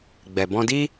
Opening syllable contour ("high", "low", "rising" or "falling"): low